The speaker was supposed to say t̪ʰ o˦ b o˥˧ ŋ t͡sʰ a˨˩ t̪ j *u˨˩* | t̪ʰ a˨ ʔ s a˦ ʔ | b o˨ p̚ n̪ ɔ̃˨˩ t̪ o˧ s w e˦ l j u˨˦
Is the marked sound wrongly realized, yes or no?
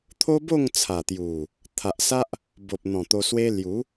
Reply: no